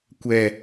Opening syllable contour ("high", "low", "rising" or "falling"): low